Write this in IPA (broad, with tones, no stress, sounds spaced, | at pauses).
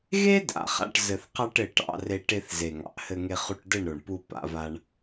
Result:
ɣ e˦ d a̰˨ χ a̰˧ ʈ z ɘ˨ θ q ɑ˧ ʈ ɘ˨ ʈ ɑ̰˧ r e˧ ʈ e˧ θ z e˨ ŋ ɑ̰˨ ʔ h ɘ˧ ŋ e˧ χ u˧ ʈ d ɘ˦˨ ɳ ɾ o˨ ɳ p u˧ p a̰˧ v a˧ ɳ